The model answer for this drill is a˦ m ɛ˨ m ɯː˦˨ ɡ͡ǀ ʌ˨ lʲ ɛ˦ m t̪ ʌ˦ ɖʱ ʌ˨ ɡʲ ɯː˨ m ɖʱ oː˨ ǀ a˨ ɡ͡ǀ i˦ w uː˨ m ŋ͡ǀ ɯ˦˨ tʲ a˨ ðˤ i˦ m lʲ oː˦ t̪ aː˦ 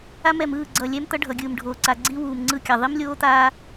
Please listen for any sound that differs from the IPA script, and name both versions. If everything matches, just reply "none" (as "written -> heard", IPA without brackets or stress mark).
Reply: tʲ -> kʲ